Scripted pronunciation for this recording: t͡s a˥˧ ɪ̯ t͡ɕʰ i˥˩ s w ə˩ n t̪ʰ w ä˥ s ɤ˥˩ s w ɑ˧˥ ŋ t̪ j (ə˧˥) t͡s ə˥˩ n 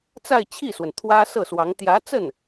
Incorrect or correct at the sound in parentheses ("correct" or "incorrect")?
incorrect